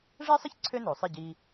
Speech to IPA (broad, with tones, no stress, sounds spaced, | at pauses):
ʐ ɛ˥ sˤ ə˥ ç ǀʰ ø˥ n o˩ sˤ e˥˩ ɟ i˧